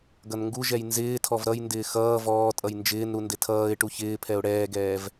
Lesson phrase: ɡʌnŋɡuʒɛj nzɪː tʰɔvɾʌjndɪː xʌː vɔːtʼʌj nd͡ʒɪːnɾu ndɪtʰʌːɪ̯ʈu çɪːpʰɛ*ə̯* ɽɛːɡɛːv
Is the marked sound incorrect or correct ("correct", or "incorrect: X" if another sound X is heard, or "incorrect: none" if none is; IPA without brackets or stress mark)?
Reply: incorrect: ʊ̯